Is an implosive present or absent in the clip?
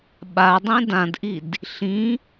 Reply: present